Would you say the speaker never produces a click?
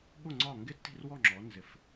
no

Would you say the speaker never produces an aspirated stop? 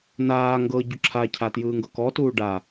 no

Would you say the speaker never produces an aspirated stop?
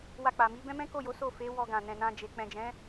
yes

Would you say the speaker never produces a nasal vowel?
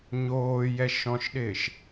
no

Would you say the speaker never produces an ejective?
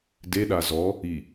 yes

